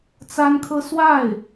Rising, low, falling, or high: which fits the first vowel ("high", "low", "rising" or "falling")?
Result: high